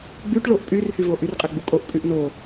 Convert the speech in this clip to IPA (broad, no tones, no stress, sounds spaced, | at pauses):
ɡ͡b y ʈ ɭ o ʔ pʼ y r h y v o ʔ y r qʼ ɛ ɡ͡b u kʼ o ʔ pʼ y ʔ n o